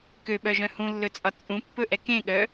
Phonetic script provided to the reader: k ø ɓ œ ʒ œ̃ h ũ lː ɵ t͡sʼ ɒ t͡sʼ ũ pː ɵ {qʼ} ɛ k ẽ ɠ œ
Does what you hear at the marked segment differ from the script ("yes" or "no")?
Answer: yes